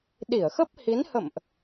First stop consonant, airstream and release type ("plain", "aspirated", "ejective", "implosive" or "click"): implosive